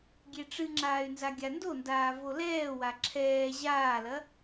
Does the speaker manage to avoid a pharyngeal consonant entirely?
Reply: yes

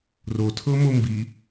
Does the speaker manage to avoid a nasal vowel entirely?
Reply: yes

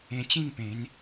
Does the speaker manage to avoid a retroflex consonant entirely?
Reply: yes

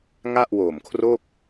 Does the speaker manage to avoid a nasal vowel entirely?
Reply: yes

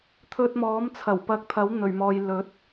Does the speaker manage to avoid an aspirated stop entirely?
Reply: no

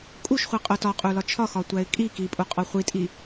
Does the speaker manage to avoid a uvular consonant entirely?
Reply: no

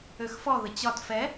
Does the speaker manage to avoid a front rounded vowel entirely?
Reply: no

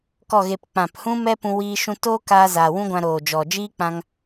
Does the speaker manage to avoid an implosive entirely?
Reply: yes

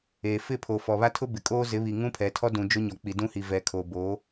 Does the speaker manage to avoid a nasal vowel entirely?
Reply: no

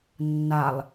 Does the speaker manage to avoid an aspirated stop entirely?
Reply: yes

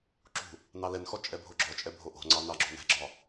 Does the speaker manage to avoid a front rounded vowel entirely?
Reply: yes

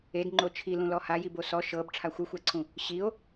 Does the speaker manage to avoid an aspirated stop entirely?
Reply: no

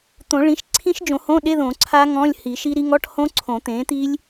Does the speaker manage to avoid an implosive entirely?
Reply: no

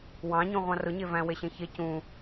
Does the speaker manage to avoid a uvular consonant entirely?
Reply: no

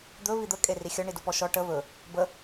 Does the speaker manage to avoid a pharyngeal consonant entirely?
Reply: yes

